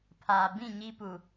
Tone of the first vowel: low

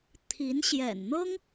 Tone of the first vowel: rising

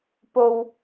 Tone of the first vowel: high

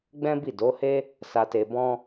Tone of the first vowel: high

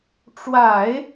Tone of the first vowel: low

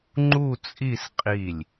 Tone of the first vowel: falling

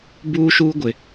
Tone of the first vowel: high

